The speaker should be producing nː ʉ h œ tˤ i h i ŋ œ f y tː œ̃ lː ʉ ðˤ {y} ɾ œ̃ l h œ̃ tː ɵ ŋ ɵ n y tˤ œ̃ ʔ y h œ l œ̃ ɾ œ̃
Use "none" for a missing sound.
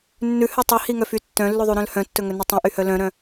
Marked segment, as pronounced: y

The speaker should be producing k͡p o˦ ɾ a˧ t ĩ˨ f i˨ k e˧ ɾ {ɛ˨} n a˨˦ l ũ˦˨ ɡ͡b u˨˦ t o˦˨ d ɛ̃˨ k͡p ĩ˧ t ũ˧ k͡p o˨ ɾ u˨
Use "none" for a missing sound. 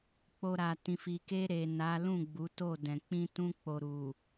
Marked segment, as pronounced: e˨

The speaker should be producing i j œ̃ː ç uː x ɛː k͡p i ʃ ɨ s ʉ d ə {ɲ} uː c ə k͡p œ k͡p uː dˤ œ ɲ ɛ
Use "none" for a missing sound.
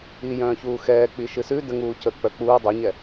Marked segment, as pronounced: ŋ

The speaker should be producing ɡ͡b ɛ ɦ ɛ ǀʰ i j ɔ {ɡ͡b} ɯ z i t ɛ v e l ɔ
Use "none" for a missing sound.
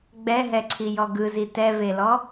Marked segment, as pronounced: ɡ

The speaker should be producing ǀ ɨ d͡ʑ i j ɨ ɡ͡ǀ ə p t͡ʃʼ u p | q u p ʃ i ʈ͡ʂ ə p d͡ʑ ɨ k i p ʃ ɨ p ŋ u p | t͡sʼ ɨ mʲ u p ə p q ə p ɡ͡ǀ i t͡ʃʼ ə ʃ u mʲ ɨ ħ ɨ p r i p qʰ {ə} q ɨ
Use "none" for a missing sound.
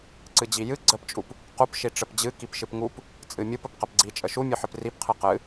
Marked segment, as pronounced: ɨ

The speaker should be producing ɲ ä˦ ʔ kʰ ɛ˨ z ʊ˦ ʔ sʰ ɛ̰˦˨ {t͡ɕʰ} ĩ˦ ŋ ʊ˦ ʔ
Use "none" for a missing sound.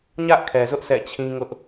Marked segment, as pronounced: t͡ɕʰ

